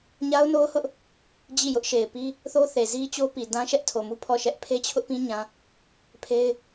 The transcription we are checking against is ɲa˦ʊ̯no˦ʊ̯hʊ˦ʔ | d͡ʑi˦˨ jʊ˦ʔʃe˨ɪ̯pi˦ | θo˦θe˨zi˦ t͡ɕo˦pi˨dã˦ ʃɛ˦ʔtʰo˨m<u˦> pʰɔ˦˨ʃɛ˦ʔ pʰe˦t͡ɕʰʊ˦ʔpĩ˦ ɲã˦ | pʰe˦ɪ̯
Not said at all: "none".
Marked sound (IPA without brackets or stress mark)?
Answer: u˦